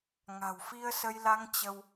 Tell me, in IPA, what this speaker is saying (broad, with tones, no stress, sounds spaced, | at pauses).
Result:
ŋ a̤˨˩ w f i˧ ə̯ s ə˧ j l a˧ ŋ t͡ɕ ə˧ w